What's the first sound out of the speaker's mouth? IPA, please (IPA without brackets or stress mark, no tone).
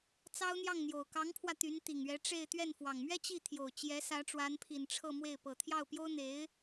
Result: t͡s